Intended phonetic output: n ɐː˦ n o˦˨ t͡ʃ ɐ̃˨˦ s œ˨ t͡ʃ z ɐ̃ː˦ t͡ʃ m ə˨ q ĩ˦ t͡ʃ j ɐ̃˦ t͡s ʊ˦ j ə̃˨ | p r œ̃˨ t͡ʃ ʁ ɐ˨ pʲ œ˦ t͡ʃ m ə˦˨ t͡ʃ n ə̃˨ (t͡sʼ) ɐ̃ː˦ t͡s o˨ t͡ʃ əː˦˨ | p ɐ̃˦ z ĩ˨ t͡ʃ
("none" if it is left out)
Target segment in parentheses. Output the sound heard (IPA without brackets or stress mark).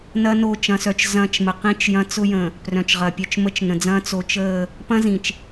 d͡z